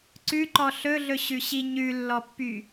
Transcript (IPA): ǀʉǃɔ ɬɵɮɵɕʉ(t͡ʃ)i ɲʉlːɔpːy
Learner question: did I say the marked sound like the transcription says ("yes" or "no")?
no